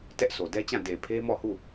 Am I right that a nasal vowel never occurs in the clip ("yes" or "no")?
no